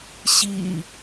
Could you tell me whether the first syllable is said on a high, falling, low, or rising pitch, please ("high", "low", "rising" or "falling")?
low